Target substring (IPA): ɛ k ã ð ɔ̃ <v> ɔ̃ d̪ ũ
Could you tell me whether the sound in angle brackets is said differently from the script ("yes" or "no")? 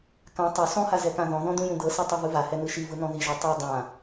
yes